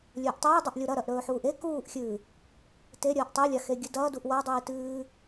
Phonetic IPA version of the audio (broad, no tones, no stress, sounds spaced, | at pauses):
lʲ ɵː ʔ tˤ iː dˤ ɵ ʔ lʲ o ɾ ɐ ɾ ɐ ʔ ɾ ɵː ħ uː ʔ e k uː ʔ xʲ ɨː | t e ɾʲ ɐː ʔ tˤ e lʲ a x e ɡʲ ɨ d ɐː d u ʔ w a dˤ iː t ɨː